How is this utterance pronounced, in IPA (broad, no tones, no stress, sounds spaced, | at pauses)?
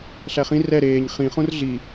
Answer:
ɬ æ χ ĩ r ɛ ɾ eː ɲ χ ĩ χ õ r ɮ i